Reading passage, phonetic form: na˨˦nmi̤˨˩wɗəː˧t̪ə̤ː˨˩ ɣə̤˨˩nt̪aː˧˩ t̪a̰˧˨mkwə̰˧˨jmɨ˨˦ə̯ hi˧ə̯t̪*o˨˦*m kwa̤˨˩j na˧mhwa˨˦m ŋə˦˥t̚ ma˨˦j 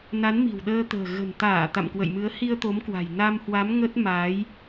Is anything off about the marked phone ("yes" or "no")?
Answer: no